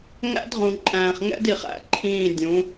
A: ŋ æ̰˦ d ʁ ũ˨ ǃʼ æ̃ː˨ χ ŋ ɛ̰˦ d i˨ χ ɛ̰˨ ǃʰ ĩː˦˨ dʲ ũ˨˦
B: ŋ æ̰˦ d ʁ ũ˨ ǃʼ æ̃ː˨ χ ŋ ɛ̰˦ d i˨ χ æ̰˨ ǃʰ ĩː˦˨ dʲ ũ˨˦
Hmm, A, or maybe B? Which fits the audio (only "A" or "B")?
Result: B